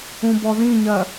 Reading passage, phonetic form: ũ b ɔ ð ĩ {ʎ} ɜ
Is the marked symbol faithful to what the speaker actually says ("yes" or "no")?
no